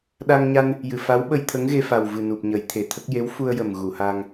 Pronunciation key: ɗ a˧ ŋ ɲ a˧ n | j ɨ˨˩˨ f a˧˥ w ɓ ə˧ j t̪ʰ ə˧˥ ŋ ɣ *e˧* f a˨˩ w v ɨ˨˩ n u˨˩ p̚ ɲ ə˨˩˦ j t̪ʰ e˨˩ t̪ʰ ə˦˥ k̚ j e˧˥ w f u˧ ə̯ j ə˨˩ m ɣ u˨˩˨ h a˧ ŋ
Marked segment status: correct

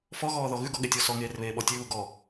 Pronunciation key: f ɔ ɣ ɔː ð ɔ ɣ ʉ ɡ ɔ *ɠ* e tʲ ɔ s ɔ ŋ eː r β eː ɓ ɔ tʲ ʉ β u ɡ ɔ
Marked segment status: correct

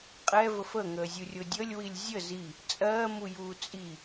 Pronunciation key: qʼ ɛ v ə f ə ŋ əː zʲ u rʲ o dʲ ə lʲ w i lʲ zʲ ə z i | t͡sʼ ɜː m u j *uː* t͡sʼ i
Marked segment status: correct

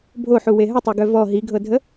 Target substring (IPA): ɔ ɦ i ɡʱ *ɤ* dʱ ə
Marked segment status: correct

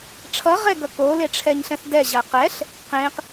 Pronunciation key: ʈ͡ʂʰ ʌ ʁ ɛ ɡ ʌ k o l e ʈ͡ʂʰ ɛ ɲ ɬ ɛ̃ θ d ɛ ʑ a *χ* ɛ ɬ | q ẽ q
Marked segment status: incorrect: q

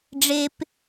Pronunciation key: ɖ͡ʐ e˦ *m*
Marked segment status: incorrect: p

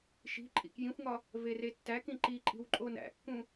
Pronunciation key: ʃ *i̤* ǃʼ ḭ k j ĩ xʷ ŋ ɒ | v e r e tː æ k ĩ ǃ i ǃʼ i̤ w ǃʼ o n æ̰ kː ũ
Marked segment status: correct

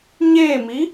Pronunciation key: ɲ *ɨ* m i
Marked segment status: incorrect: e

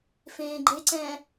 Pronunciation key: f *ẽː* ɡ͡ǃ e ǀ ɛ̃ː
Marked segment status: correct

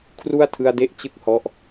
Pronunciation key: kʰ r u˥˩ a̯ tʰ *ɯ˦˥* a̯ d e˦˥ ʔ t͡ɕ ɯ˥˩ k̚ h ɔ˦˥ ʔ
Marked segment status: incorrect: ɯ˧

